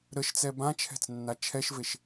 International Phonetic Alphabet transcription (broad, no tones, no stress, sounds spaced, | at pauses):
ɾ ə ʃ t͡s ɛ b ã t͡ʃʰ ɛ̤ t͡s nː a t͡ʃʰ ɛ ʃ v e ʃ